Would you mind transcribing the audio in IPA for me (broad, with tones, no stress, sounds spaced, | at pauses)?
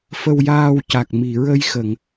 f ə˧ w j aː˧ w c a˨˩ k̚ m i˨˩˨ ɹ ə˧ j x ə˨˩˨ ŋ